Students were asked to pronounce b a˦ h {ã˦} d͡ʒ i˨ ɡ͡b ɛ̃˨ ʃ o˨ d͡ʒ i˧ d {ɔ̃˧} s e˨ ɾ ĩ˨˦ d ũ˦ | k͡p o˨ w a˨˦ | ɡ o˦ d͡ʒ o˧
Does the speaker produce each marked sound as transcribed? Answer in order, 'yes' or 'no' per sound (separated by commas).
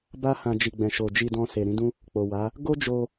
no, yes